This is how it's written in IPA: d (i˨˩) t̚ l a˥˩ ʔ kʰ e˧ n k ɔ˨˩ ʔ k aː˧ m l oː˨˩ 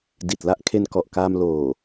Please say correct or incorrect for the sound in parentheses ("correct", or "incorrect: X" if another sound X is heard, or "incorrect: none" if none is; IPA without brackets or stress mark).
correct